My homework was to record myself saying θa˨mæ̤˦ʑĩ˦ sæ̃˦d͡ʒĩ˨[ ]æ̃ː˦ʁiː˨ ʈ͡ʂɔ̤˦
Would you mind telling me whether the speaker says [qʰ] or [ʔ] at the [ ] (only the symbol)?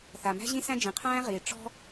qʰ